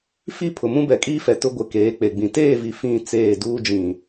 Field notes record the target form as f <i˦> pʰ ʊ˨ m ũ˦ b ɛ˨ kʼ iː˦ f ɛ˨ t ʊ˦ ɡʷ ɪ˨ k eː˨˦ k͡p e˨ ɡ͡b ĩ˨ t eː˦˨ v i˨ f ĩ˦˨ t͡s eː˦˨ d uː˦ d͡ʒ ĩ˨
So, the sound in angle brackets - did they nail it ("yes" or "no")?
yes